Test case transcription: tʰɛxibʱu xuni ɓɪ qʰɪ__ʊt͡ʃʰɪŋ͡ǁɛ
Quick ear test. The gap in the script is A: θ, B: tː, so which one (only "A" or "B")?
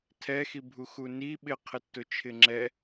B